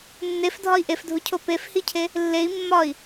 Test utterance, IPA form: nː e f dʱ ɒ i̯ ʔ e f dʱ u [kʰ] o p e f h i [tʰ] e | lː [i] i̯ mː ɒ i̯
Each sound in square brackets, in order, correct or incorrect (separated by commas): incorrect, incorrect, incorrect